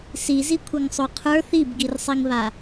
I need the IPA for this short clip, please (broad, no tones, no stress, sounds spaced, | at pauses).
s i z i kʷʰ ʌ ŋ sˤ o qʰ ə˞ θ i b ɡ i r sˤ i ŋ β a